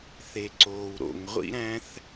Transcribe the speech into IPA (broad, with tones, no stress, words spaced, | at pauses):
θe˩ǀoː˩w ɾo̰˩ŋʁʷḭ˥ ɾæ̃˥θ